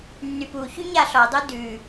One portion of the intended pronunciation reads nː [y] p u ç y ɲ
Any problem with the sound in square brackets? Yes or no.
no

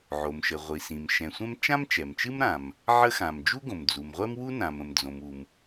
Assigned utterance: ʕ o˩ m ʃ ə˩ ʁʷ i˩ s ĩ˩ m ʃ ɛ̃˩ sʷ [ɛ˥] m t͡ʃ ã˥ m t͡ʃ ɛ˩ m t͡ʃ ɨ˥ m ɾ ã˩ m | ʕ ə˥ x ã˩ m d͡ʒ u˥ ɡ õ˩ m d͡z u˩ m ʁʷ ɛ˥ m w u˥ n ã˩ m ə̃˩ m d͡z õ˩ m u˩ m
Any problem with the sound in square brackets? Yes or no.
yes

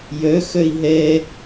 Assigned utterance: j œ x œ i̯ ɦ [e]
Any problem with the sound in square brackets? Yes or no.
yes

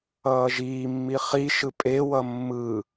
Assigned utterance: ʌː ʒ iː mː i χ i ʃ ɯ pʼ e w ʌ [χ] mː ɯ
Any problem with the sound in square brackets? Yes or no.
yes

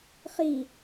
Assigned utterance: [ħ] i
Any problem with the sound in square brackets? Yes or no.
yes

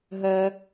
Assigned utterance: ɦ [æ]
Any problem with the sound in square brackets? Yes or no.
yes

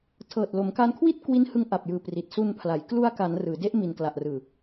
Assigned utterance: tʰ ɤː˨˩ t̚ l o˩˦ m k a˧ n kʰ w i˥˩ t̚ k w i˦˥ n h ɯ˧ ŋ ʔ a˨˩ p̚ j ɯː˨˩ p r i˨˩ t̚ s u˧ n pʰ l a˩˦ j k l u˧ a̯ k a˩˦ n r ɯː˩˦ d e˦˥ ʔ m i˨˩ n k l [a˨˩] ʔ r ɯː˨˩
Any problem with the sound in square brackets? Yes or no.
no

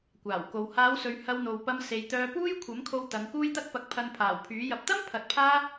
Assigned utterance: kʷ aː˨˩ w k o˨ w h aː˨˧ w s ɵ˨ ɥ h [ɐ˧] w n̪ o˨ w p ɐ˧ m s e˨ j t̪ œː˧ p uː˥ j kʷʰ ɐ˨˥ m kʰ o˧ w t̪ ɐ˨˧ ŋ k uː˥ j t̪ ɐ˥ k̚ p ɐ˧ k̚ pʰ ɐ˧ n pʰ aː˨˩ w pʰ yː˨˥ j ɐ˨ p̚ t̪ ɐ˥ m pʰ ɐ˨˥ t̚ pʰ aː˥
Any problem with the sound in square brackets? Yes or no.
no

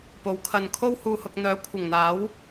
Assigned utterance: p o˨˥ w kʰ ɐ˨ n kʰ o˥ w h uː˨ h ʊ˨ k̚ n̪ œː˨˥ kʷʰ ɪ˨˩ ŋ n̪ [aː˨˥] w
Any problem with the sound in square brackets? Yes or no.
no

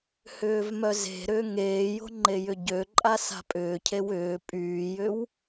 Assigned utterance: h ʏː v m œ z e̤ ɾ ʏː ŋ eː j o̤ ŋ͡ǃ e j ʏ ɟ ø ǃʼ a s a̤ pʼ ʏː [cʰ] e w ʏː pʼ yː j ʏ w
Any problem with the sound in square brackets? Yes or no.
no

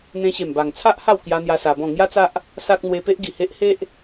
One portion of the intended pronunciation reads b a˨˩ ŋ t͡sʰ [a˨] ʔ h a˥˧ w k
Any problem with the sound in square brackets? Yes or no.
yes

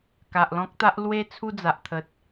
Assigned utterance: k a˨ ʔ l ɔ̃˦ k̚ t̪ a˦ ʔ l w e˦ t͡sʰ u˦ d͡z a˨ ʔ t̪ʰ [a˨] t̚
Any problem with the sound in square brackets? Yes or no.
yes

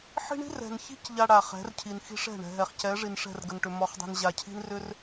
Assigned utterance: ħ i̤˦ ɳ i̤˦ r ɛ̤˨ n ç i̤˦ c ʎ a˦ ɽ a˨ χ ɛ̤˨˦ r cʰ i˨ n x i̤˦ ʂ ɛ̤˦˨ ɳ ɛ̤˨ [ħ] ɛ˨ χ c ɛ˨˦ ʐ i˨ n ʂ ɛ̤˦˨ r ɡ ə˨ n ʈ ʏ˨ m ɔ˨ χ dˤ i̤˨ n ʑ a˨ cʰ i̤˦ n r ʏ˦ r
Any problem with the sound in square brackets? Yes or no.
yes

